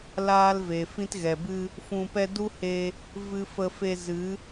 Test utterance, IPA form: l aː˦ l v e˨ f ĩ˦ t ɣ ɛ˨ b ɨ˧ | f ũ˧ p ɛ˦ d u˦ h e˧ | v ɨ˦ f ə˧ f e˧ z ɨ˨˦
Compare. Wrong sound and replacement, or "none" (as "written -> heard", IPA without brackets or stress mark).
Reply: none